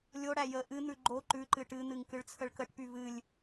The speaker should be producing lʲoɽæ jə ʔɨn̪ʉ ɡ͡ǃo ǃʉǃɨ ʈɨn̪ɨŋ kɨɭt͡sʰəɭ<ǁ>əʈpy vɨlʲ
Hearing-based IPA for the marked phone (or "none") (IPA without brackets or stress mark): k